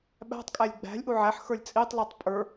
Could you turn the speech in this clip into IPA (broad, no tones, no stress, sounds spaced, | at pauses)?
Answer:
ɓ æ̤ tˤ kʼ æ lʲ ɡ͡b æ̤ lʲ ʔ u ʕ æ ħ x ə˞ lʲ t͡sʼ i tˤ lˠ u tˤ pʼ ə˞